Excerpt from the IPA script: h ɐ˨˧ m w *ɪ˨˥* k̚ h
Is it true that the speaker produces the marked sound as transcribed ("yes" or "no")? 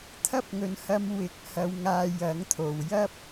yes